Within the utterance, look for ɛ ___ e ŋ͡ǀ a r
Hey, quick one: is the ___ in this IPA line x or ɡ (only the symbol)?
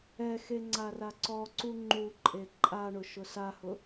x